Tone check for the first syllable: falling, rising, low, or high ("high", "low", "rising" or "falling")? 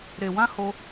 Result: low